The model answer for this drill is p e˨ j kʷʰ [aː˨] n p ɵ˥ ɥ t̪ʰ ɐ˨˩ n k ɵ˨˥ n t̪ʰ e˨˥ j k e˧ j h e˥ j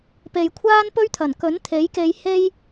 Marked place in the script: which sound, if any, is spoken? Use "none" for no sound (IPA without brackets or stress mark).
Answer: aː˥